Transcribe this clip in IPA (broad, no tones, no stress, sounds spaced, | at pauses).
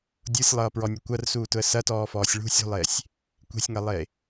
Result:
dʲ u sʲ lˠ ʌː p ɹ ɔ nʲ ʊ kʷ ɐ r s uː t ʊ ə̯ s ɐ t ɔː f ɔː sʲ ɭ ṳ sʲ ṳ lˠ eː sʲ | kʷ e̤ sʲ ŋ ɐ lˠ eː